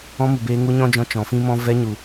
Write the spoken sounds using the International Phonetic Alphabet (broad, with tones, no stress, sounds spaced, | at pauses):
ɔ̃˧ m u˨ b eː˧ ŋ u˧ ɲ ɔ̃˦ d͡ʒ ɔ̃˧ t͡ʃ ɔ̃˨ f ĩ˦ m ɔ̃˦ v ɛ˧ ɲ u˨